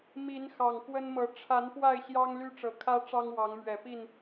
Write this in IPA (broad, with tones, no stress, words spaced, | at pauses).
mi˨˦n xɑ˨˩ŋkwə˦nmɤ˨˦ ʈ͡ʂʰa˨˦n pwa˥˨ɪ̯ɕjɑ˦ŋ ly˦ ʈ͡ʂɤ˨˩kʰä˦ ʈ͡ʂɑ˦ŋwɑ˨˦ŋmɥɛ˨˩pi˥˨n